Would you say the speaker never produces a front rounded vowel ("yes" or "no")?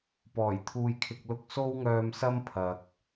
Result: no